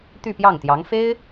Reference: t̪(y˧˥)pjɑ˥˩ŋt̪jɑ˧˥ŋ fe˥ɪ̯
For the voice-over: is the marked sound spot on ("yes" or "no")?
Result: no